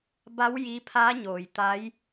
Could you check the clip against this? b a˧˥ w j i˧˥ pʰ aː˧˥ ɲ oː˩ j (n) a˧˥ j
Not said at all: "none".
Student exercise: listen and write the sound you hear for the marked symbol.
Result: t̪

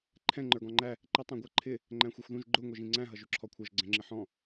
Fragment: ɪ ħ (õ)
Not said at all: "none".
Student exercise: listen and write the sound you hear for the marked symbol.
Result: ɔ̃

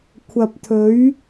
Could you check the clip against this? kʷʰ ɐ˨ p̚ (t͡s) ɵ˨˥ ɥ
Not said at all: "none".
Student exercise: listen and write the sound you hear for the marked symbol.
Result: t̪ʰ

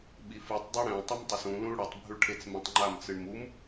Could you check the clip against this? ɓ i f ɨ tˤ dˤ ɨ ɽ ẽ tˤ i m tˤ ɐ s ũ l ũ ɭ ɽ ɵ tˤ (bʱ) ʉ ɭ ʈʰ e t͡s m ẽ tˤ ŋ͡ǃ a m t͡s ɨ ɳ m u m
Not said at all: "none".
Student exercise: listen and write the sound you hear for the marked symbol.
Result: bʱ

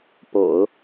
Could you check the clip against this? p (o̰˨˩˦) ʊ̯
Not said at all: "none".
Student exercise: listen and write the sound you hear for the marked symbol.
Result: o̰˨˩˦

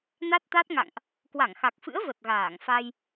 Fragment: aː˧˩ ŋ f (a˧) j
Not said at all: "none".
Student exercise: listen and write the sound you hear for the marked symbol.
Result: a˧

